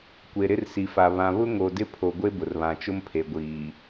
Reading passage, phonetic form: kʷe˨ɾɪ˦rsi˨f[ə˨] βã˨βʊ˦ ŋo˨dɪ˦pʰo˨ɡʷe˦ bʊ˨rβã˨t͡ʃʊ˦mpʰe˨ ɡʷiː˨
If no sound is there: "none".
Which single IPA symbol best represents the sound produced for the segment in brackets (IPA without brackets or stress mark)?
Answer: a˨